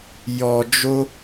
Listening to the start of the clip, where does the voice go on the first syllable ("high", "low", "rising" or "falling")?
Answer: low